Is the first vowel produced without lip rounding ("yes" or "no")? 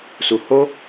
no